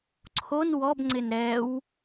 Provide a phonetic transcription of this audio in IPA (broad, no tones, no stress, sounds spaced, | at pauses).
ǀʰ o n w ɔ b ŋ͡ǀ ɪ n ɾ ɛ w